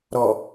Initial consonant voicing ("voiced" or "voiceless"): voiced